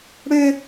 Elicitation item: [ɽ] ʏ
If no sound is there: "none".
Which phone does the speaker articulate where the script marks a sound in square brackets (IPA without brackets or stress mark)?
ɽ